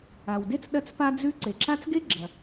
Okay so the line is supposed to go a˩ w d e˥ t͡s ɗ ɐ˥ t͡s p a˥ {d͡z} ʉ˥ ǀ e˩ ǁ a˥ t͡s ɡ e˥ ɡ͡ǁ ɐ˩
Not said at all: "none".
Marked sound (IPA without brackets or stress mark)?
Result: d͡z